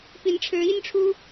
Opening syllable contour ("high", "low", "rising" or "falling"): rising